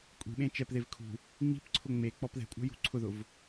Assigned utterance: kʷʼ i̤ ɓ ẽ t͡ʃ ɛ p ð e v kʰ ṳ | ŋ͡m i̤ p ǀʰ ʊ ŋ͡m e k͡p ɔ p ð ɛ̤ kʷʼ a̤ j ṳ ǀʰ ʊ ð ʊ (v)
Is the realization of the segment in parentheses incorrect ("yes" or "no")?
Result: no